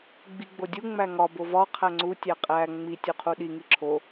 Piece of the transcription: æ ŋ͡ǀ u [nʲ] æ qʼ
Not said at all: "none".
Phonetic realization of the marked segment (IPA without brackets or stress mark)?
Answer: tʲ